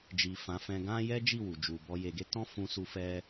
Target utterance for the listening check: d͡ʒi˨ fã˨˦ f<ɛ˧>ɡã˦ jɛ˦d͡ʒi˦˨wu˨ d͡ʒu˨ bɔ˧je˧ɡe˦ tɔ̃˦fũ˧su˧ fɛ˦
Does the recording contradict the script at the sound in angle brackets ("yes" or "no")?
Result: yes